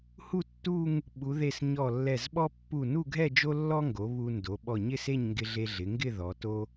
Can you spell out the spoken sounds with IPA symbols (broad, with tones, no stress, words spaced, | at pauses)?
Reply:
hu˥˧tːu˥˧ŋ | ɓu˩˧ðe˧˩s ɲɔ˧˩lːɛ˧˩zɓɔ˥ pːu˧˩nu˥˧ɡʱɛ˥˧ d͡ʒo˥lːɔ˥ŋɡo˩˧ βu˧ndo˩˧ ɓɔ˧˩ɲɪ˥˧se˥˧ɲ ŋɡɪ˧ɮe˧ɮɪ˩˧ŋɡɪ˥˧ ðɔ˩˧to˥